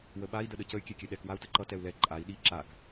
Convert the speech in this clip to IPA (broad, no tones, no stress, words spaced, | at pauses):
wəɓai̯ dəɗəcəy̯ kʲɛkʲɛɗɛk wau̯təǃʌ tɛu̯lɛ ǃʼai̯ ɗi ǁak